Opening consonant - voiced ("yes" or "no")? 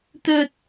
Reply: no